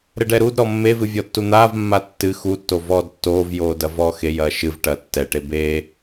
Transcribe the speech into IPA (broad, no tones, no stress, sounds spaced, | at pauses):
ɾ ɘ ɖ ɛ ɾ u d ɾ ɔ mː e v ɨ vʲ ɔ tː u n̪ aː v mː a tː ɨ x u tː o v ɔː d tː oː v j oː d ɐ v ɔː x e j ɐː ʃ ɨ v ʈ ɐː tː ɛ ʈ e b e